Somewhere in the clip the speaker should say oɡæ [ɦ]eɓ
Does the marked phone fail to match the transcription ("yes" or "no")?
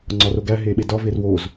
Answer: no